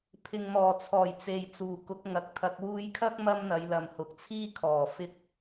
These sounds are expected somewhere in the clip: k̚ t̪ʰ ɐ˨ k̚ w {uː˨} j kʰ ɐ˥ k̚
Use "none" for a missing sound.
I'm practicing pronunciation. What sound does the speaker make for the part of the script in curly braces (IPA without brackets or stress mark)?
uː˧